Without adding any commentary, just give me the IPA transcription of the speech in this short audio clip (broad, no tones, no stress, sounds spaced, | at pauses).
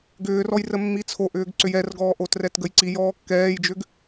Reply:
ɡ ʏː r ɔ j r ə mː i t͡sʰ o ʔ ʏː ɡ ǀ ʏ j ɛ r ɡ ɔː ʔ o t r ɛ t ɡ ə j ǀ i j ɔː kː ɛː j d͡ʒ ʏ ɡ